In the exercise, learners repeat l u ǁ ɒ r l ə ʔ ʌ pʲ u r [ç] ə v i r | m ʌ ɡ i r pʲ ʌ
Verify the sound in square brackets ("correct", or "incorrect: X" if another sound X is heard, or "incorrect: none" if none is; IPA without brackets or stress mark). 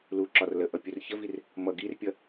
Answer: correct